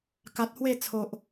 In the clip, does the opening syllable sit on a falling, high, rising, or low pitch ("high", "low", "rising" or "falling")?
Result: low